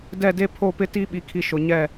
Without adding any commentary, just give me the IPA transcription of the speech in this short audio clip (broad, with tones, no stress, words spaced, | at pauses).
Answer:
dɛ˦˨de˦ pʰo˦˨pɪ˦ti˦ ɓi˨kʰi˨ ʃʊ˨ɲɛ˦˨